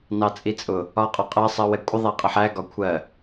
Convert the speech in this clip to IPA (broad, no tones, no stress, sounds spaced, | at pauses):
n ɑ t͡sʼ i t͡sʼ ʊ | ɒ qʼ ɒ qʼ ɜ sˤ ɜ w ɛ kʷʼ ə ðˤ æ qʼ ə ħ æ ɡ ɒ kʷʰ ɜ